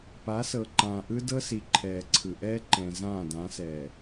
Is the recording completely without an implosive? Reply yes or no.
yes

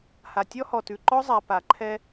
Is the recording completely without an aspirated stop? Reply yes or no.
no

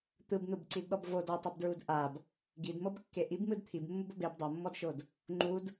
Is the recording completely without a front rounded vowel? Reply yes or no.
yes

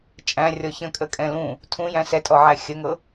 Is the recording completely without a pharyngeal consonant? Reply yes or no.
no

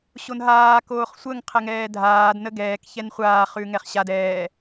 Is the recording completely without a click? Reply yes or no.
yes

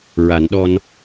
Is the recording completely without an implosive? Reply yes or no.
no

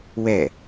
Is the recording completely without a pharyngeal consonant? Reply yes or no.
yes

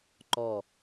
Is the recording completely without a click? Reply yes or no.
no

